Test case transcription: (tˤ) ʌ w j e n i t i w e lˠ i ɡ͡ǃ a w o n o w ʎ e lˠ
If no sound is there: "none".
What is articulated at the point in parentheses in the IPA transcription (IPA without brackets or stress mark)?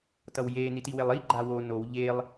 t